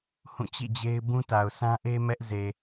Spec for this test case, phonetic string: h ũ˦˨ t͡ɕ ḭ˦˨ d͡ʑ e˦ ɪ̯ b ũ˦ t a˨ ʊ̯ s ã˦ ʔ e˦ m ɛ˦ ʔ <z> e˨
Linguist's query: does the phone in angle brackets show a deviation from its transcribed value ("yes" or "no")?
no